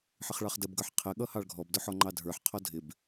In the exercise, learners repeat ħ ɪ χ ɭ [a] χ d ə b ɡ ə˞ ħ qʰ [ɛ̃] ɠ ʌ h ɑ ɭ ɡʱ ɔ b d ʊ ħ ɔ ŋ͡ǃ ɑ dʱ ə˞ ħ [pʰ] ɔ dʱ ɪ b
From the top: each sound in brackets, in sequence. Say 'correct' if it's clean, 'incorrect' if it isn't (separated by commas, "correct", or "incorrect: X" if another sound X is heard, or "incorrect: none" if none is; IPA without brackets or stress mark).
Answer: incorrect: ɑ, incorrect: ɛ, incorrect: qʰ